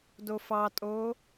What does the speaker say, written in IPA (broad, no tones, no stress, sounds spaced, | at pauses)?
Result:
d o f ɑ tʼ oː